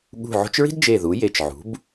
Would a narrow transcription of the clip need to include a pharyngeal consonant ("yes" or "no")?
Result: yes